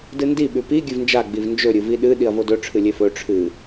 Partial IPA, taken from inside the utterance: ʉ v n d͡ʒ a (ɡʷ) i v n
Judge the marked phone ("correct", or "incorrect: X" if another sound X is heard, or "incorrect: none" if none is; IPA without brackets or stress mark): incorrect: ɡ͡b